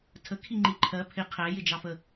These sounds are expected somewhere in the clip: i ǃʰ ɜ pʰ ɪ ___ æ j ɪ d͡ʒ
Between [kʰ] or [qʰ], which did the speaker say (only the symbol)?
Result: qʰ